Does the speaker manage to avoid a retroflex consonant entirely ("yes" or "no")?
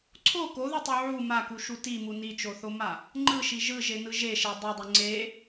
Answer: yes